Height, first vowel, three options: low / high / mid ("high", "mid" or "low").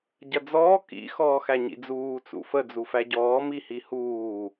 low